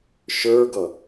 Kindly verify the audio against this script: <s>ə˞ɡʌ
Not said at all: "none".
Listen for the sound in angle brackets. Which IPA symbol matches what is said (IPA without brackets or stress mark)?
ʃ